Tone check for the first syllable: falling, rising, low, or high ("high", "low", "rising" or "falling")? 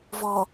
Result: low